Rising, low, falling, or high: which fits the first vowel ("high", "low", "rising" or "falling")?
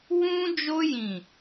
high